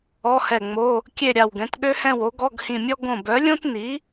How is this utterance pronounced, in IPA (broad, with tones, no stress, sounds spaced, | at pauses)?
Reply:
ɔ˧˥˧ h ɛ˧˩ ŋ͡m o˧˥˧ | kʲ e˥˨ ɾʲ a˧˩ w ɡ ɛ̃˩˥ t ɠ ø˥ h ɛ̃˥˨ w o˩˥ ɡ ɔ˧˥˧ ɡ h ĩ˧˩ mʲ ɔ˥ ɡ õ˧˩ b œ˩˥ lʲ õ˥ t n̪ i˩˥